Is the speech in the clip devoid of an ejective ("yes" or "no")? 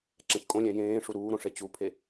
no